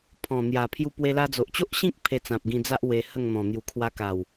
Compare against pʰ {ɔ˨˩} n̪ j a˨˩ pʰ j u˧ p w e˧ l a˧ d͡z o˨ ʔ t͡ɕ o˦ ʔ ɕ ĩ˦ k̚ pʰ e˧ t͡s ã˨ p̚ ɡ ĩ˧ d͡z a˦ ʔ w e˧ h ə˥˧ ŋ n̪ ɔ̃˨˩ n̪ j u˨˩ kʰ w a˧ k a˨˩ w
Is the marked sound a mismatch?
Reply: yes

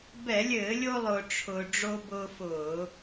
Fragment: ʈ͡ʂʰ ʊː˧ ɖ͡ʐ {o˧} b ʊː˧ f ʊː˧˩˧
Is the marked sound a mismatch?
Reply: no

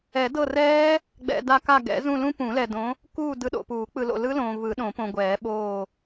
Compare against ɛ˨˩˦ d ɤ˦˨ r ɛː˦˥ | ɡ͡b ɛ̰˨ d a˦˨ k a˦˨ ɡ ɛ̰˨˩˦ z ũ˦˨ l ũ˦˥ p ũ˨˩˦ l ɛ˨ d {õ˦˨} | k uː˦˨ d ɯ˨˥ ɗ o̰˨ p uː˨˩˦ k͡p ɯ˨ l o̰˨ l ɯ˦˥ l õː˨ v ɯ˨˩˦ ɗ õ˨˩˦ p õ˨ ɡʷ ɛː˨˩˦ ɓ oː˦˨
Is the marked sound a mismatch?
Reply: yes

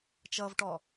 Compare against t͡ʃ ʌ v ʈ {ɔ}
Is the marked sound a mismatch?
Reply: no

